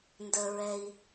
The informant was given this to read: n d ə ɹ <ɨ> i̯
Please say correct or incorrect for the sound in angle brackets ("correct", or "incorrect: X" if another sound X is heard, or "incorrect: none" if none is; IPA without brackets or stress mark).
incorrect: ɛ